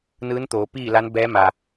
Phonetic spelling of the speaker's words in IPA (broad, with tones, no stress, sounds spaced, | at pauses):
n ɯː˧˥ n t̪ oː˩˧ p iː˥˨ l a˧˥ n b ɛː˧˥ m a˩